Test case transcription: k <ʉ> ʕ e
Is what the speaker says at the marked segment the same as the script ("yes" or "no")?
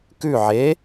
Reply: yes